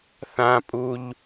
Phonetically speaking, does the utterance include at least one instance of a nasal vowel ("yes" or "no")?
yes